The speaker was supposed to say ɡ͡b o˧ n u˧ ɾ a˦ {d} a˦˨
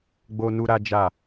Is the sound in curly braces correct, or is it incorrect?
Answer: incorrect